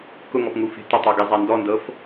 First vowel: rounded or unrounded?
rounded